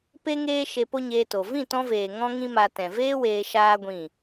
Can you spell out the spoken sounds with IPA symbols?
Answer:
p e˦ ŋ eː˦ ʃ e˧ p o˦ ɲ eː˧ t o˨ v ĩ˦˨ t ɔ̃˧ v eː˨ ŋ ɔ̃˦ ŋ ĩ˦ m a˧ t ɛ̃˨ v eː˦ w eː˧ ʃ aː˦ ɡʷ ĩ˦˨

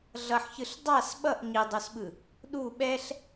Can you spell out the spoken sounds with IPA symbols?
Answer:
ɮ ʌ ħ ç ɯ ɬ dˤ a s ɓ ʌ ʔ ɲ i dˤ o s ɓ ɯ | ɗ u ɓ ɛ ɬ

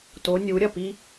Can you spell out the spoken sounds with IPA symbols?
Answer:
t o nʲ u ɾʲ ɐ p i

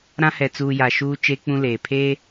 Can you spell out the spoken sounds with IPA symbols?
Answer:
ɾ ã˦ h ɛ˨ t͡s uː˨ j a˨ ʃ uː˦ t͡ʃ e˦ k͡p ũ˦ l eː˨ pʰ eː˦

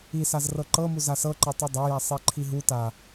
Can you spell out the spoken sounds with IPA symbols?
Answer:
i s a z r ɤ ǃ ɤ m u z a s ɤ ǃ ɤ tˤ ɯ dˤ ɤ j a sˤ i ǃʰ i ɦ u t a

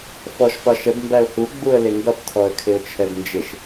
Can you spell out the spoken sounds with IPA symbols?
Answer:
f ɔ ʃ p ɒ ʃ ə b m b æ ʊ̯ h u ɡ͡b u ə̯ l ɪ ŋ ɡ ʌ p tʰ ɔ ə̯ kʰ ɪ ʊ̯ t͡ʃʰ ɛ b n d͡ʒ ɪ ʃ

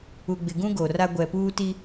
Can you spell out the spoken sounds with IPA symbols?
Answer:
u˨ ɡ͡b ɪ˨ ɡ ũ˦ ɡ o˨ r a˦ ɡʷ ɛ˨ p uː˦ t i˦

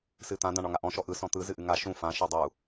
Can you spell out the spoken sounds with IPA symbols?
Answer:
s ɨ t̪ ã d̪ ã ɳ ɒ ŋ a ʔ ɔ̃ ʃ ɔ ʔ ɯ s ɔ̃ t̪ ɯ z ɨ ʔ ɨ ŋ a ʃ ũ f ã ʃ ɔ dˤ u

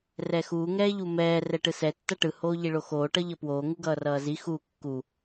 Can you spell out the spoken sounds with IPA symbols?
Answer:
r ɛ x uː ŋ ɛː ʎ u m ɛː r ɛ ʈ ɯ s ɛ tː ʌ ʈ ɯ h oː ʎ i ɭ o x oː ʈ ʌ ʎ ʌ p w oː ŋ u ɡ ʌː r ʌː z i x u kː u

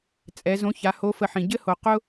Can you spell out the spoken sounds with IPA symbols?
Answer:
t͡sʼ ɛ˩˧ z õ˧˥ ç a˩˧ h o˧˥ f ə˧ ħ ĩ˩ ɟ ɘ˥ h o˩ q ʊ˥

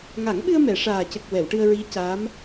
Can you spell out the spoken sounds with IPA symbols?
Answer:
ŋ a˨˩˦ ŋ ɓ ɨ˧ ə̯ m ɛ˨˩˨ ʂ aː˨˩ c ə˨˩ k̚ w ɛ˨˩˨ w ʈ ɨ˧ ə̯ ɹ i˧˥ c a˧˥ m

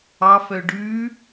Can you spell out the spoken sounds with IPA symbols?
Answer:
ɑ f œ ɖ ʉ

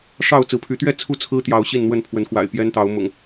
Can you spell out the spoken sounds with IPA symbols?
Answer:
ʂ ɑ˥˨ ʊ̯ t͡s ɹ̩˨˦ pʰ y˨˦ t̪ ɥ ɛ˥˨ t͡sʰ u˥˨ t͡sʰ ɹ̩˦ t̪ j ɑ˨˦ ʊ̯ ɕ i˥˨ n n̪ w ə˥˨ n pʰ w ə˨˦ n x w a̰˨˩ ɪ̯ p j ɛ˦ n t̪ ɑ˨˦ ʊ̯ m ʊ̰˨˩ ŋ

